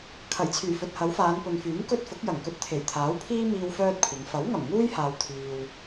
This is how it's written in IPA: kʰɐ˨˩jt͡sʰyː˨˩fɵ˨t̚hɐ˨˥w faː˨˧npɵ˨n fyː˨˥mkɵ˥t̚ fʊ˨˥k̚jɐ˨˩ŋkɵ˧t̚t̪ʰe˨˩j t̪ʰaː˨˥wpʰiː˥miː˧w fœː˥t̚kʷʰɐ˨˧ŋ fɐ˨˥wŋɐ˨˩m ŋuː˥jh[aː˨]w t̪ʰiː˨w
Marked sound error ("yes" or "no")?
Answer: no